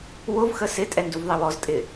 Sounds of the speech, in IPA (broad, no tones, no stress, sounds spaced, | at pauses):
w ʊ v x ə s ɪ tʼ ɛ n d u v ðˤ i w ɔ z tʼ ɪ